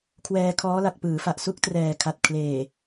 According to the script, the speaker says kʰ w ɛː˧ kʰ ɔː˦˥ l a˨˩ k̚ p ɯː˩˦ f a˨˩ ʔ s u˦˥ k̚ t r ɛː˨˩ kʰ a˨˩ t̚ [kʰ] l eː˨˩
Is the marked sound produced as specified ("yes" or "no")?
yes